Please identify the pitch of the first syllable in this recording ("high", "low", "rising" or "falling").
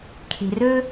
low